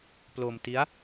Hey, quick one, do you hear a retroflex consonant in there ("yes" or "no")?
no